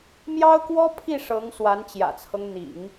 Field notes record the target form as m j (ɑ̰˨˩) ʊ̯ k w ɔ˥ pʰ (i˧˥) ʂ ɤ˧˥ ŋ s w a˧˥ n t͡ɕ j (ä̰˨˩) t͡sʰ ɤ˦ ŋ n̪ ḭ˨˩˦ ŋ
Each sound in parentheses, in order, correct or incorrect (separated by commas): incorrect, incorrect, correct